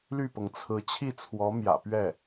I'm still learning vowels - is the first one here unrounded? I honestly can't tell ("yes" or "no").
no